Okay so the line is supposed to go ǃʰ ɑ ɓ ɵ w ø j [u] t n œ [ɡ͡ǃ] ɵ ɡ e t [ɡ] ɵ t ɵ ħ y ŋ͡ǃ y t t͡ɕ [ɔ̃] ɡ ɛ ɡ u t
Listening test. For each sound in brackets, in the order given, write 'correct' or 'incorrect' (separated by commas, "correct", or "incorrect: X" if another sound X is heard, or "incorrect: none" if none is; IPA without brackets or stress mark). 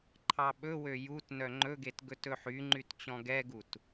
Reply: correct, incorrect: ŋ͡ǃ, correct, correct